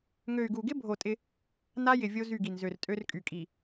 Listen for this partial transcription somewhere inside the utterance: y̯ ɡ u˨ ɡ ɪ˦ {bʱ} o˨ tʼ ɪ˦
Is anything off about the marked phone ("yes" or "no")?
no